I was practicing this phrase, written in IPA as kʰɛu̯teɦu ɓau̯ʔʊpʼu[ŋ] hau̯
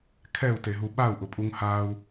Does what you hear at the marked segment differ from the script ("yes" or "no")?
no